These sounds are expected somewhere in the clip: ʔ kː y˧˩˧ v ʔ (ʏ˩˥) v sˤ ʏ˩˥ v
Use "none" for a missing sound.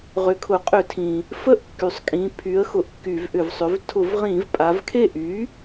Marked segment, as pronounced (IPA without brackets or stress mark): ʏ˧˩˧